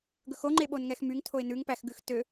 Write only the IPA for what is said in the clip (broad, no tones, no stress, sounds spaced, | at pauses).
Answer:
ɡ ɵ x o ŋ͡ǃ e ɓ o n ŋ ɛ x m y ŋ tʰ o ɪ̯ n ʉ ŋ p æ x ɡ ʉ x t ø